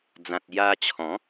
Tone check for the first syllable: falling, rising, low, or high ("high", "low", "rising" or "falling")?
low